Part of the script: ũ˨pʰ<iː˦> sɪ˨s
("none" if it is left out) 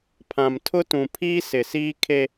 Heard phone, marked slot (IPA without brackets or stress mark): iː˦